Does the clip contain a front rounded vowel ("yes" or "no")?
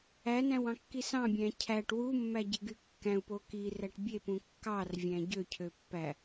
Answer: yes